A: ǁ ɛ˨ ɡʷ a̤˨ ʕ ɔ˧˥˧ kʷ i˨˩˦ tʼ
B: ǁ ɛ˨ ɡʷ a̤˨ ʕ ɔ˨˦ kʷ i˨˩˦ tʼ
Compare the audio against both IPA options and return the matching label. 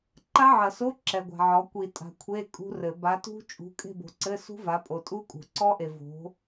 B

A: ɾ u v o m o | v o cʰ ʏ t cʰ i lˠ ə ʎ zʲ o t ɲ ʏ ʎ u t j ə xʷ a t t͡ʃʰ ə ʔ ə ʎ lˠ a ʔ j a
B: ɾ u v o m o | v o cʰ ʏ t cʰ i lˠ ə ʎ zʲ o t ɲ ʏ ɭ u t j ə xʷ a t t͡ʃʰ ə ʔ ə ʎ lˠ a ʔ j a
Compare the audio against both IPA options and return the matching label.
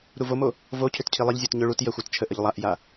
B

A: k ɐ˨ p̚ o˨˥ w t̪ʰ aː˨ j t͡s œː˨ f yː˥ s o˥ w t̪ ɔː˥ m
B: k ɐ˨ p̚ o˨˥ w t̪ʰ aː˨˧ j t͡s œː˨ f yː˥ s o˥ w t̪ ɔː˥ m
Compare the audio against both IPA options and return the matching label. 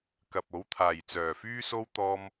A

